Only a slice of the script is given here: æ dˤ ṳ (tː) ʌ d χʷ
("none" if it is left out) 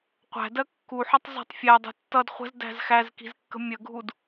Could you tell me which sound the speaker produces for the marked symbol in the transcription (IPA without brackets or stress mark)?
tː